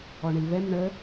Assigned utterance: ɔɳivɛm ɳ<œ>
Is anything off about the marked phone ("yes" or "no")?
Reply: yes